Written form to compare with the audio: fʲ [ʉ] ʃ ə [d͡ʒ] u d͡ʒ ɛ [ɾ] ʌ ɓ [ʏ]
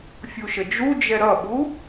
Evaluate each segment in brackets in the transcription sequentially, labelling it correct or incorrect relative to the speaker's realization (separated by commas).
incorrect, correct, correct, incorrect